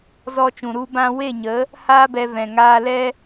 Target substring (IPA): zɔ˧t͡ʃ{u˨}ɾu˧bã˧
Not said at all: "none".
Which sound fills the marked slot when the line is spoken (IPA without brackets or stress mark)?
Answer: ũ˨